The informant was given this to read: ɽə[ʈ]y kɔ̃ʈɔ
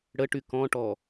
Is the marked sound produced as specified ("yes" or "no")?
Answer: yes